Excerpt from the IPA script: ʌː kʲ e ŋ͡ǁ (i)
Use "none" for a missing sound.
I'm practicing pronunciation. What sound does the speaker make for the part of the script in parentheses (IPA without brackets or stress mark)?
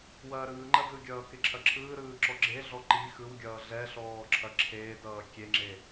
e